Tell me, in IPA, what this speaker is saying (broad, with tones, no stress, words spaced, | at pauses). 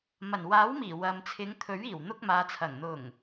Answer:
mɐ˨˩nwaː˨˥wmiː˨˩ wɐ˨m t͡sʰɪ˨˧ŋt̪ʰɵ˨˥ɥiː˨˩w n̪ʊ˧k̚maː˨t͡sʰɐ˨˩ŋ n̪ʊ˨˩ŋ